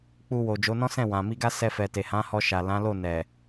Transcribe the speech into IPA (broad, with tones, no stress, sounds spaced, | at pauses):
k͡p u˧ w o˨ d͡ʒ o˨˦ n ɔ̃˦ s ɛ̃˦˨ w ã˨ m i˧ ɡ a˦ s ɛ˧ f ɛ˨ t e˨ h ã˨˦ h ɔ˧ ʃ a˨ l ã˨˦ l o˦˨ n ɛ˨